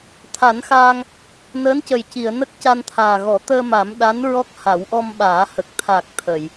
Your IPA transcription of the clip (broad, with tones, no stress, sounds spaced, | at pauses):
t̪ʰ a˨˩˦ n x aː˧ ŋ | n əː˧˥ n c ə˨˩ j c i˨˩˨ ə̯ n ə˦˥ k̚ c a˧ n t̪ʰ aː˨˩ ɣ ɔ˨˩˦ t̪ əː˧ m a˨˩˦ m ɗ a˧˥ n ɹ ɔ˦˥ k̚ h a˨˩˦ w ʔ ɔ˧ m ɓ aː˨˩˦ h ə˨˩ k̚ t̪ʰ a˨˩ k̚ t̪ʰ ə˨˩˨ j